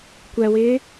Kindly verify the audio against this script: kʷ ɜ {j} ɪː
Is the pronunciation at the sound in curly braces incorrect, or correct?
incorrect